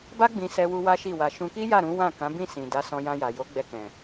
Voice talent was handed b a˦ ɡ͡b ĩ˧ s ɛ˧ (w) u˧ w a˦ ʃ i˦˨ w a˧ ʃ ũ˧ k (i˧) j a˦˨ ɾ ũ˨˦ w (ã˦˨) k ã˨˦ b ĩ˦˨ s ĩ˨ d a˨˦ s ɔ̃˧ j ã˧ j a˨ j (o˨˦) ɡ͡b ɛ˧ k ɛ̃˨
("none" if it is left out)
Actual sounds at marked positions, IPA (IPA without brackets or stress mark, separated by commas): w, i˦, ã˦˨, o˨˦